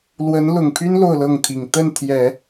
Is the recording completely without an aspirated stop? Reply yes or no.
no